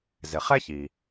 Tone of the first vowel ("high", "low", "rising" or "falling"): low